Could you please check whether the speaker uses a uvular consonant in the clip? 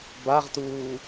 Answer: yes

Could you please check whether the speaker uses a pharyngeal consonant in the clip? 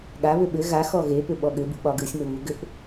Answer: no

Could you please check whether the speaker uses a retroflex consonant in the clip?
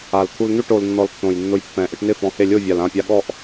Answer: yes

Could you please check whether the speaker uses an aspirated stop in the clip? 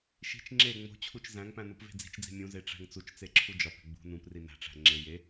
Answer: yes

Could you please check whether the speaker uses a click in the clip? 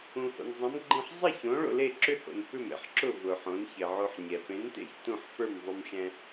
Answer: yes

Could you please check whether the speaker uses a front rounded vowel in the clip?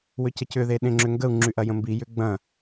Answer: yes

